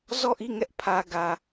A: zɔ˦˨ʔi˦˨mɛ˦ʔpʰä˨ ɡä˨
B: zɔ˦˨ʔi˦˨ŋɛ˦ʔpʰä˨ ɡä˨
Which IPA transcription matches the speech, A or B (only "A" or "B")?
B